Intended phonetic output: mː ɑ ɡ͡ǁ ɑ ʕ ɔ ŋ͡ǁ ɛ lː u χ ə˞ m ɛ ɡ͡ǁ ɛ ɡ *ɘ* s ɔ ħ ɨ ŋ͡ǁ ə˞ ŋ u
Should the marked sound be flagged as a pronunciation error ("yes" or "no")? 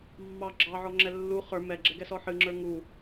yes